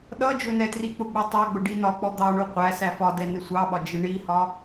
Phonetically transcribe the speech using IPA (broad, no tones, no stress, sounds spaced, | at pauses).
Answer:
ɗ ʌ d͡ʒ ʊ n ɛ t r i k͡p ʊ ɡ͡b u tˤ ɑ ɡ͡b ʊ ɖ i n ɒ k͡p ɔ d̪ ɑ ɳ u qʷ æ s æ f ɒ d ɛ n ɪ sʷ ɑ ɓ ɒ d͡ʒ ɪ ɳ i h ɒ